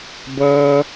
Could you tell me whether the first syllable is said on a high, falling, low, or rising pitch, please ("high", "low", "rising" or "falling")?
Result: high